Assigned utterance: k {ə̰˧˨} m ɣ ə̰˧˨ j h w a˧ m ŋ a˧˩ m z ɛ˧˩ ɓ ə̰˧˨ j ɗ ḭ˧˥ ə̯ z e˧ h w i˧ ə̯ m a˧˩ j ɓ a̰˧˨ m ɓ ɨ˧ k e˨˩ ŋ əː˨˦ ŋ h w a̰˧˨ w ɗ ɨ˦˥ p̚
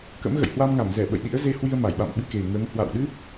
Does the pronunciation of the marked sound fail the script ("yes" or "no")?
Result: yes